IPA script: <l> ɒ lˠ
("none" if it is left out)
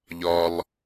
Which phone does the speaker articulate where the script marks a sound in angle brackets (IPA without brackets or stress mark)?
ʎ